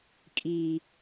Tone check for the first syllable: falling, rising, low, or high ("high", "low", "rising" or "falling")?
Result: low